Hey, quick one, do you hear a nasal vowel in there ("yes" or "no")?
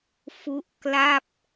no